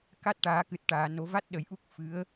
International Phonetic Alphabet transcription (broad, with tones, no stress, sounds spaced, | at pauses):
k a˦˥ t̚ ʈ aː˨˩˦ k ɨ˨˩ t̚ ʈ aː˨˩˨ n o˨˩˦ v a˦˥ t̚ ɗ ə˨˩˦ j ʔ u˦˥ k̚ f ɨ˧˥ ə̯